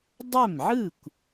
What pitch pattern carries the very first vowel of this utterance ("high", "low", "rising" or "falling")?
falling